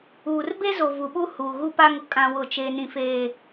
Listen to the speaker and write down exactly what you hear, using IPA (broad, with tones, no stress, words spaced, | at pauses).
uː˨r be˦zo˨ vu˨ɓu˦ huː˨ɣu˦pa˦ŋʊ˦ kʼã˦wʊ˦˨t͡ʃe˦ nĩ˦ feː˦